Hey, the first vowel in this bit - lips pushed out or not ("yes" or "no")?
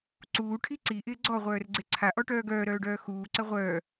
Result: yes